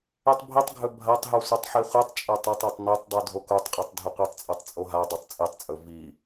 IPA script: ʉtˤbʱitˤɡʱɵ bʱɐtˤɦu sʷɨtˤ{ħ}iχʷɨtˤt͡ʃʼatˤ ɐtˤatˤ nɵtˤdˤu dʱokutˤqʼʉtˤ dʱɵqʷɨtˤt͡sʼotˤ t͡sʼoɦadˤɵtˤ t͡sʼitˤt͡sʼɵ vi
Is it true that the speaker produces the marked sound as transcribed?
yes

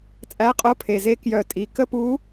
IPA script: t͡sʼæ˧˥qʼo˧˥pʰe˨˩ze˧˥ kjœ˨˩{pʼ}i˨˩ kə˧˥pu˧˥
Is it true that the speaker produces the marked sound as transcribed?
no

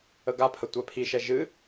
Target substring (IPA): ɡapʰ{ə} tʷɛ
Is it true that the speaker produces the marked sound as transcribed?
yes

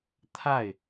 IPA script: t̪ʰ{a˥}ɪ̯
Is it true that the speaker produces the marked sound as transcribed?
no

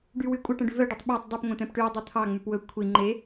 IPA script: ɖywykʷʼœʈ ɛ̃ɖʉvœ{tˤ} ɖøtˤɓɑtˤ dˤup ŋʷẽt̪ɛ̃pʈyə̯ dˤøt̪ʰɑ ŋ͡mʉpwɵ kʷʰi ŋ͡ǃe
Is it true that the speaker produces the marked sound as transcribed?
no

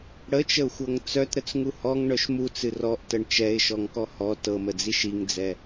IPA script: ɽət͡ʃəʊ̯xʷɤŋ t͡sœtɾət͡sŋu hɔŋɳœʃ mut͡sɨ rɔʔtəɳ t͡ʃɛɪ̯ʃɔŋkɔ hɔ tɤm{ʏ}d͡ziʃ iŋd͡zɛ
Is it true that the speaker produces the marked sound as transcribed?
no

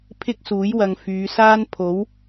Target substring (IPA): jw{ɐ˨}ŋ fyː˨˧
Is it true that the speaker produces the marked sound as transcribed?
yes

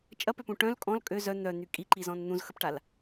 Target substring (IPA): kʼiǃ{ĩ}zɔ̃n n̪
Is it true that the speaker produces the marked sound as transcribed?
no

